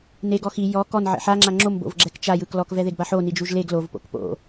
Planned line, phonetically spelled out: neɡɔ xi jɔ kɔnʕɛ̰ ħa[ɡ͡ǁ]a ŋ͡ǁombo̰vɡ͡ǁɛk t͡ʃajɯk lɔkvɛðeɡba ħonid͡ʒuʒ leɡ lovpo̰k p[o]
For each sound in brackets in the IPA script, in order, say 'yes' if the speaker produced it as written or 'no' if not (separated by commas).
no, no